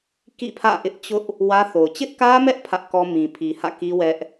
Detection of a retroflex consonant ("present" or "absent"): absent